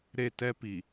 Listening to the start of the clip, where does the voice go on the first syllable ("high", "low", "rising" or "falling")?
falling